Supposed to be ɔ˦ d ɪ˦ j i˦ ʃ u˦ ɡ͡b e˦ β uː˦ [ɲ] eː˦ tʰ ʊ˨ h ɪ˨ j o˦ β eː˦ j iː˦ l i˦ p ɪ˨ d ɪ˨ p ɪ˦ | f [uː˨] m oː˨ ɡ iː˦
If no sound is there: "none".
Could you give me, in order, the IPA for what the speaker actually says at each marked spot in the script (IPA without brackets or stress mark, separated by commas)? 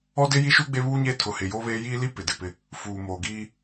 ɲ, uː˨